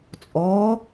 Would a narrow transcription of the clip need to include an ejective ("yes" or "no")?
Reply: yes